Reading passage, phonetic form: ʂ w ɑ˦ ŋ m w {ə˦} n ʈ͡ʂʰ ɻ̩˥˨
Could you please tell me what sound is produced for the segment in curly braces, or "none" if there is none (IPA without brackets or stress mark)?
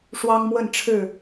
ə˥˨